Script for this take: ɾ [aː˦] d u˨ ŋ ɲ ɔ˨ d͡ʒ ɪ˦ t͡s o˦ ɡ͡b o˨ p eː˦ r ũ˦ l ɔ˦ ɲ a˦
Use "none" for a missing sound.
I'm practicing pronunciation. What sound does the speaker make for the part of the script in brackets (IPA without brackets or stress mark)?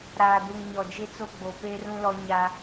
aː˨